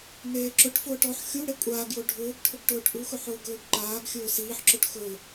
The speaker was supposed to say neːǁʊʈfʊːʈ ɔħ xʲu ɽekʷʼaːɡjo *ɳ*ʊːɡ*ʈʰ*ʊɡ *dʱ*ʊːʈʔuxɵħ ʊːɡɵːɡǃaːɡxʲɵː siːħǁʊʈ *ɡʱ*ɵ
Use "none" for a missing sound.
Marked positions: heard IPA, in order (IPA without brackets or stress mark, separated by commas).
ɖʱ, ʈʰ, ʈ, x